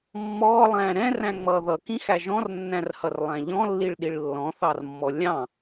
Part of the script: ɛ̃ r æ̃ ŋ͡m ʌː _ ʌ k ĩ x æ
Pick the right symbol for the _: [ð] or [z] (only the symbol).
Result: ð